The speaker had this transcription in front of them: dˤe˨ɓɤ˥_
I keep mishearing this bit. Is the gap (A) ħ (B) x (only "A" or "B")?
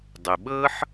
A